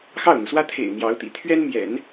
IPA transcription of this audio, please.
x ɑ˥˩ ʊ̯ n̪ u˩ s w ä˥ t̪ʰ ḛ˨˩ ɪ̯ n̪ j ɑ˧˥ ʊ̯ t̪ ḭ˨˩ t̪ʰ ɥ ɛ˥ n m j ɛ̰˨˩˦ n

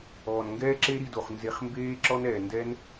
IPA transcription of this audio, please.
ɔː˨ n ŋ ɡ ɛː˦ ǁ e˦ ɾ i˧ d o˨ χ n z e˧ χ m b eː˦ ǁ ɔ˦ n ɛː˨ n d ɛ˦ n

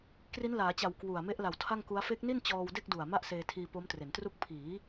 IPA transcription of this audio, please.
k r i˦˥ n l aː˩˦ t͡ɕ a˨˩ w k w u˨˩ a̯ m e˦˥ ʔ l a˨˩ w tʰ a˥˩ ŋ k u˦˥ a̯ f e˦˥ k̚ n i˥˩ n t͡ɕ ɔː˧ w d e˥˩ k̚ d u˨˩ a̯ m a˥˩ ʔ s eː˧ tʰ iː˧ p o˦˥ m t r e˩˦ n t r u˥˩ k̚ pʰ iː˩˦

